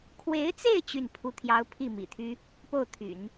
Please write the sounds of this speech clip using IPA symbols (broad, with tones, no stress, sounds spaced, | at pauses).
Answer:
kʰ w e˧˥ ɪ̯ t͡s e˥˧ ɪ̯ t͡ɕ y˥˩ n pʰ u˧˥ t̪ʰ j ɑ˧˥ ʊ̯ pʰ i˥˩ m ḭ˨˩ t̪ʰ y˥ | p o˥˩ ʊ̯ t̪ʰ y̰˨˩˦ n